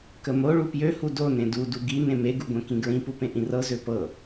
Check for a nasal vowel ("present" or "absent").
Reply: present